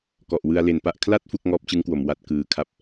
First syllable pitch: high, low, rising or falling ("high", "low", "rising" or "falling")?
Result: low